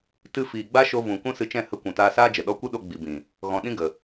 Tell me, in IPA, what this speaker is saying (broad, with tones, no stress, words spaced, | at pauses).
tɨ˧ fiː˨ɡ͡ba˦ʃo˧vũ˨ kũ˦sɨ˧t͡ʃɛ̃˦˨ hə˧ kʷũ˨taː˧saː˦d͡ʒə˨ ɗɔ˧kʷɨ˦ ɗo˧ ɡ͡bi˨bĩ˨ | ɣɔ̃˨ ɗĩ˦ɡə˨